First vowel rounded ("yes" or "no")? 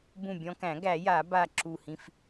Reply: yes